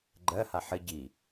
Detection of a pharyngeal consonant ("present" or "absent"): present